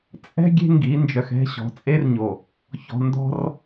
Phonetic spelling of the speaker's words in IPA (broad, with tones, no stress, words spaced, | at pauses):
t͡sʼɛ̤˦ ɡʲe̤˦ ŋɡi˨˦nd͡ʒœ˨xɛ̤˦ɕɔ̤˨ t͡sʼe˦rɲo˨ | çɔ̤˨ndɔ̤˦r